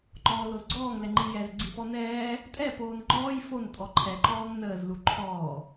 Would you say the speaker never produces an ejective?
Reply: no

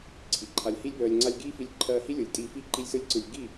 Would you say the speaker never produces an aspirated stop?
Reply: no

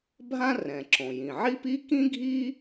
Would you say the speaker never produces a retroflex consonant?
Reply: yes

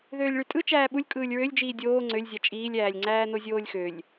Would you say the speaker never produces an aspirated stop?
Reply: yes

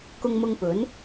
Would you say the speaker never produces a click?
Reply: yes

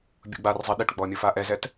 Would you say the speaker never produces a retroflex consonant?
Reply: no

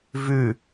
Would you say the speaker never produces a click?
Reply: yes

